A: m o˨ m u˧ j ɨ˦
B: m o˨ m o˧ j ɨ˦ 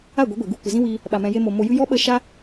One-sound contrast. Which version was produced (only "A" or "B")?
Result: B